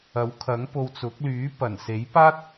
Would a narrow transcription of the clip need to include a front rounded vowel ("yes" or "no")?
yes